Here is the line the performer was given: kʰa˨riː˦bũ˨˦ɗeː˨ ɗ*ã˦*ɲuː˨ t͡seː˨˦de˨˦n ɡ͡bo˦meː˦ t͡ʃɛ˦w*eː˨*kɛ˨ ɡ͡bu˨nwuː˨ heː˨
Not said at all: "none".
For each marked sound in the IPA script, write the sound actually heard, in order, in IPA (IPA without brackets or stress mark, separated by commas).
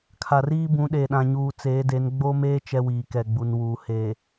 ã˨, iː˨